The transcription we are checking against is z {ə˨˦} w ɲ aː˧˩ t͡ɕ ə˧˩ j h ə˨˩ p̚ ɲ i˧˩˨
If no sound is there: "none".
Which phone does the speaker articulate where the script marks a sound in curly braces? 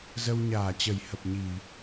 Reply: ə˧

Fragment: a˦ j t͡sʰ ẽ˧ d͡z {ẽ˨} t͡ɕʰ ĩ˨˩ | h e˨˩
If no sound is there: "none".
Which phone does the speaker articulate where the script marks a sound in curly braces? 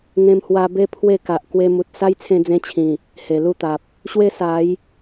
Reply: ẽ˧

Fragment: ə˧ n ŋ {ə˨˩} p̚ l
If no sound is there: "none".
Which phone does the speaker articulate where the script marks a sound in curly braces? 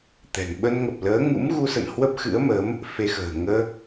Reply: ə˨˩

